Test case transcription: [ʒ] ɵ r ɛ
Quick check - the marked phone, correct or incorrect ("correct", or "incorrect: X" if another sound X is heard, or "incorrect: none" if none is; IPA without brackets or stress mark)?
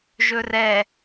correct